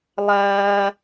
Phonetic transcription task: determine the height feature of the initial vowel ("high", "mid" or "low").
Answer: low